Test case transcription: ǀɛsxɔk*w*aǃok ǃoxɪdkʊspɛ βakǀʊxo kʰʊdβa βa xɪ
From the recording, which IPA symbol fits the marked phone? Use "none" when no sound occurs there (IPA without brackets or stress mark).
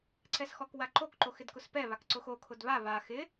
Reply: w